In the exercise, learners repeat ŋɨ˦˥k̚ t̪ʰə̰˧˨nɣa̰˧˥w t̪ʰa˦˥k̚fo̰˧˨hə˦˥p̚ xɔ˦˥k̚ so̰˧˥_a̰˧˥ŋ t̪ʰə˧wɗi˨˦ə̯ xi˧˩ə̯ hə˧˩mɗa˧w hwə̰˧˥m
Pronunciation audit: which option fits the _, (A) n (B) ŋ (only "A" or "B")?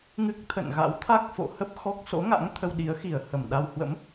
B